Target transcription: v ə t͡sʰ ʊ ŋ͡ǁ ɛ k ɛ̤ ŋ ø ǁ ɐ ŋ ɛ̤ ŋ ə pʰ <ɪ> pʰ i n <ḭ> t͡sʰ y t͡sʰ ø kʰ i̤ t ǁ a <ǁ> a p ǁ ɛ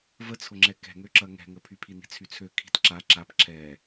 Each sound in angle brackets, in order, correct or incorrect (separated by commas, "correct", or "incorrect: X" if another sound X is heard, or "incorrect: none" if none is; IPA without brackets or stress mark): incorrect: y, incorrect: i̤, correct